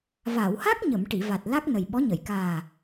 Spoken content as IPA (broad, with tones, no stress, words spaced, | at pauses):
va˨˩˨wha˦˥k̚ɲə˨˩˨m ʈi˨˩˨va˨˩t̚ la˦˥k̚nə˨˩jɓɔ˧˥ɲə˨˩˨j kaː˨˩